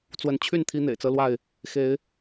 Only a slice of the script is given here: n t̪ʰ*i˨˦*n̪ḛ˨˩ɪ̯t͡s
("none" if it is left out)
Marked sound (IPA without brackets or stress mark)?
i˦